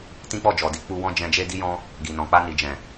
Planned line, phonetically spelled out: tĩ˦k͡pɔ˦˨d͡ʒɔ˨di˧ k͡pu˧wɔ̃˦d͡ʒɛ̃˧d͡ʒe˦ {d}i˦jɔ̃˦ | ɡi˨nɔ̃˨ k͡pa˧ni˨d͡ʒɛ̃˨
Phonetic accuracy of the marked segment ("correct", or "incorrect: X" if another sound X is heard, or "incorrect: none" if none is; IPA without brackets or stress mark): correct